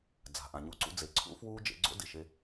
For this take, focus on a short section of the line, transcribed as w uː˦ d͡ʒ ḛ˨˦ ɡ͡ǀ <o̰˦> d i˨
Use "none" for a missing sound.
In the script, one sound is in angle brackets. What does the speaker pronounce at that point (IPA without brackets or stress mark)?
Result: o̰˦